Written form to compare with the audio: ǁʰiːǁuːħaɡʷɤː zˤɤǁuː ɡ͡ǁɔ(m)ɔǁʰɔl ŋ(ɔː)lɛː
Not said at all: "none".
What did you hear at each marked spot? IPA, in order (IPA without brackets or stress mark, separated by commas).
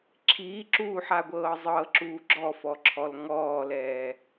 f, ɔː